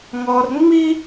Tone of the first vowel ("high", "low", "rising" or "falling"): high